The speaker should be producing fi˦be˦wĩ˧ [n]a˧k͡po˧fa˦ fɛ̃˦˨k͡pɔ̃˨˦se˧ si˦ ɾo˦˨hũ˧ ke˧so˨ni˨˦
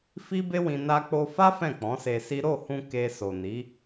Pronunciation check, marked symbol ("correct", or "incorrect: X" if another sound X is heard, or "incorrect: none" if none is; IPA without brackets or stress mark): correct